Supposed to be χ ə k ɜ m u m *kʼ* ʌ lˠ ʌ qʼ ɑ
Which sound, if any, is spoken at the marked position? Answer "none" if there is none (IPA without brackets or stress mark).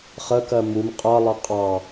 qʼ